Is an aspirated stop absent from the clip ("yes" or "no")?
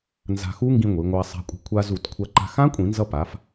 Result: no